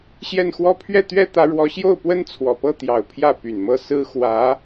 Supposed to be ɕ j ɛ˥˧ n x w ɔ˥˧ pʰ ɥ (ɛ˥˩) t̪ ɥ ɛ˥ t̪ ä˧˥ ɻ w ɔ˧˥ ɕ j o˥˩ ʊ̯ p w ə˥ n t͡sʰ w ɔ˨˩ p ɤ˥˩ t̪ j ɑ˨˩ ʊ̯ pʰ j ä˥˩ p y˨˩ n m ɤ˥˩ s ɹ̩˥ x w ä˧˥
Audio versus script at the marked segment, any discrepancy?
no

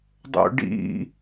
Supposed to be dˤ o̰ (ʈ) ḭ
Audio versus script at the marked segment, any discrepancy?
yes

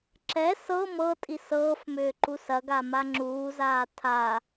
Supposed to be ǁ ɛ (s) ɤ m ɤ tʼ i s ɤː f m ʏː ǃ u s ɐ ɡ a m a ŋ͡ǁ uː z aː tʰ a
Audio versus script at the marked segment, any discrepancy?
no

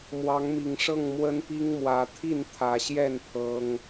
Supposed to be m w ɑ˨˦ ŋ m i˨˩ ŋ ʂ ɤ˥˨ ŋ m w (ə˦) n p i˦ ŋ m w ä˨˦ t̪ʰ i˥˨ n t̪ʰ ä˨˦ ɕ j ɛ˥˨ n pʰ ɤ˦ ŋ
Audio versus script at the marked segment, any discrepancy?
no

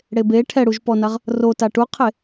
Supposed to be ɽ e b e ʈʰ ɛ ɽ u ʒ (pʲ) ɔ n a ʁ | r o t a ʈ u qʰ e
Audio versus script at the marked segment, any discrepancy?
yes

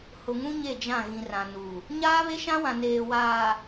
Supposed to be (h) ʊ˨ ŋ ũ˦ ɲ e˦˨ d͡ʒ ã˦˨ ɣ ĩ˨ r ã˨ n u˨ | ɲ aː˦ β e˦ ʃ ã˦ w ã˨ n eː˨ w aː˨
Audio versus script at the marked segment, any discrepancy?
no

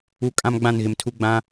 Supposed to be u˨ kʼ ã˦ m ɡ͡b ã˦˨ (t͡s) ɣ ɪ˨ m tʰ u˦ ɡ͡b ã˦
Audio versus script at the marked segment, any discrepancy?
yes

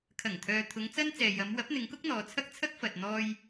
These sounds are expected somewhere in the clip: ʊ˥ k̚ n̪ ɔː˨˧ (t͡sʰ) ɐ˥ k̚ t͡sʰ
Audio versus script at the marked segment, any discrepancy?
no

